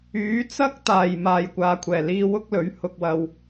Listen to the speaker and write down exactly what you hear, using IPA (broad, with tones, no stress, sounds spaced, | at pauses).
yː˨˥ t͡s ɐ˥ k̚ t̪ aː˨˩ j m aː˨ j kʷ aː˨ kʷʰ ɛː˨˩ l iː˧ w ʊ˥ k̚ l ɵ˨˥ ɥ h ʊ˨ k̚ w ɐ˨ w